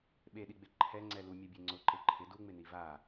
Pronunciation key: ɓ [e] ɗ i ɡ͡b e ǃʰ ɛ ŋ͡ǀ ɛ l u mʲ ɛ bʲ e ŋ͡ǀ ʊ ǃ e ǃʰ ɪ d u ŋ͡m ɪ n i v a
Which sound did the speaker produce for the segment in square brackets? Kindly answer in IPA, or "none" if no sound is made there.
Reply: e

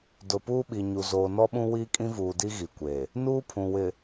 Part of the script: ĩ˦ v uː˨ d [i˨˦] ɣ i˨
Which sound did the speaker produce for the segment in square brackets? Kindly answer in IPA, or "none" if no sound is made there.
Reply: i˦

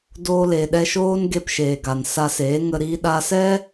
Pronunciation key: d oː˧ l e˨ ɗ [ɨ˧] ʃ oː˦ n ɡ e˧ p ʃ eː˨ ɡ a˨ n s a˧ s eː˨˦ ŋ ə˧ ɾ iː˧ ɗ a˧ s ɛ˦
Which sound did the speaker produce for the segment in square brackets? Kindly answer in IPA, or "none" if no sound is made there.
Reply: ɛ˧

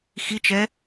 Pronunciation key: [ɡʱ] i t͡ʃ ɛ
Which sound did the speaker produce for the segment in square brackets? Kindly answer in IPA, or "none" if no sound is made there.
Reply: x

